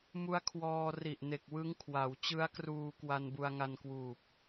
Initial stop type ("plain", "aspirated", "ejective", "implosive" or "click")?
aspirated